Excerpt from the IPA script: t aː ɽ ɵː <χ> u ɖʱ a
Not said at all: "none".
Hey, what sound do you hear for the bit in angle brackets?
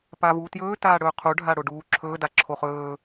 qʰ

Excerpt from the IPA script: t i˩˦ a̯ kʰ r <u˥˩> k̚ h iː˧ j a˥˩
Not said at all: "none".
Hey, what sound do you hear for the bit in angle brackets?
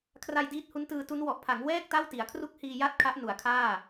u˥˩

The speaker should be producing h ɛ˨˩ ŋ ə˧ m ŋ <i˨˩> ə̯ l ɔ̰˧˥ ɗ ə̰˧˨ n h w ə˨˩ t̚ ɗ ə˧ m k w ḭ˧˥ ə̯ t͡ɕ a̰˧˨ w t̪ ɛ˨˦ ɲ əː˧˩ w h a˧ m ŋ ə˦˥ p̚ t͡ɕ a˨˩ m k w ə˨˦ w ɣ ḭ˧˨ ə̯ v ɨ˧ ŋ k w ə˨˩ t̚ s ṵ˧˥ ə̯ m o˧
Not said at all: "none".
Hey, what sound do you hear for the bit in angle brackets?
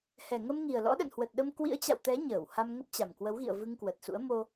i˨˩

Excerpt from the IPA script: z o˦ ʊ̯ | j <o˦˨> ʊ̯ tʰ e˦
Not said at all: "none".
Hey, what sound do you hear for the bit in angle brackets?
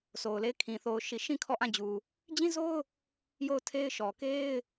o˦˨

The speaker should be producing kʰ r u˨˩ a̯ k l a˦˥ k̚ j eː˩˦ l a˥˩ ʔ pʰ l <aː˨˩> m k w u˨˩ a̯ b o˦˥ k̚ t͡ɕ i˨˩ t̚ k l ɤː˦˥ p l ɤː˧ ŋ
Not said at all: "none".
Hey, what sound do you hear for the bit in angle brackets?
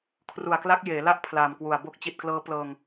aː˨˩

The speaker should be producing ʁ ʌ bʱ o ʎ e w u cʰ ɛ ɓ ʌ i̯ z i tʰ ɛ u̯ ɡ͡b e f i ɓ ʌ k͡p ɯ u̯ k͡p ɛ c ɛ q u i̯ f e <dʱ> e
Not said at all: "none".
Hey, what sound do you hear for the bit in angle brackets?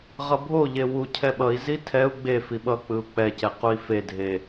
dʱ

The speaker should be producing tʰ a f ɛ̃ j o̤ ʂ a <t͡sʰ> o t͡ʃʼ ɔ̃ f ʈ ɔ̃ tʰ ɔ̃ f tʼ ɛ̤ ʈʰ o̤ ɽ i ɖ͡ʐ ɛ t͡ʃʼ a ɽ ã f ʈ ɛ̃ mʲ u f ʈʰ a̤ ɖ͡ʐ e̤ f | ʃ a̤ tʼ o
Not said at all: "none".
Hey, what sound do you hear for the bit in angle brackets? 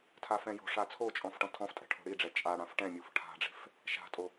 t͡sʰ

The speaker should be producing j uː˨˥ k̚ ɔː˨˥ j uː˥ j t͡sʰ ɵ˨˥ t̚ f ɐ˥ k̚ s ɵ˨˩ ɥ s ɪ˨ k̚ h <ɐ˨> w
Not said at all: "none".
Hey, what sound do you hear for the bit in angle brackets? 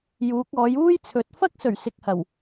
ɐ˨˩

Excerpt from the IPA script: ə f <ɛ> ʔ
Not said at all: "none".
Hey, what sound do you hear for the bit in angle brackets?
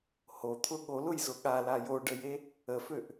ø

